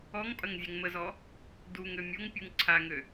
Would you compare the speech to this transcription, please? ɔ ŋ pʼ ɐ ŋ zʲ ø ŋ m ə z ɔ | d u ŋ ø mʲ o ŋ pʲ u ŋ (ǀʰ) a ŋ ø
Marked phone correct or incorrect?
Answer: correct